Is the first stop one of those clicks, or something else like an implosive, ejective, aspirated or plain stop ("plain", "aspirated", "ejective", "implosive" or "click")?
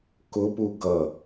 plain